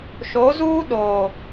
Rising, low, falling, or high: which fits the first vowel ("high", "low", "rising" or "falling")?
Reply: rising